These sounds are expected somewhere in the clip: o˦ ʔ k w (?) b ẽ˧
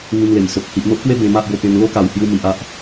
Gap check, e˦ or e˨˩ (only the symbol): e˦